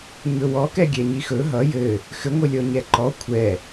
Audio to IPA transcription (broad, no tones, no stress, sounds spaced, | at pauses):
ɲ ɵ w ɔ k ɛ ɡʲ ɛ ɲ i x ɵ ɦ ʌ j ɘ | x ɘ ŋʷ ɘ lʲ ɔ ɲ ɛ ǃ ɔ kʷʰ ɛ